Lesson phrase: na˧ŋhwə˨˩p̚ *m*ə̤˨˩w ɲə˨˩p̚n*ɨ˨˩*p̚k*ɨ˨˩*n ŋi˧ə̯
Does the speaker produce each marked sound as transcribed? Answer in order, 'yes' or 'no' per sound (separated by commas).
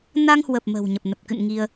yes, no, no